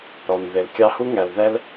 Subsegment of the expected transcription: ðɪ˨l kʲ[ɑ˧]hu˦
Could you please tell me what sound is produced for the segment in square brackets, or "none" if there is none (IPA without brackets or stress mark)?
ɑ˧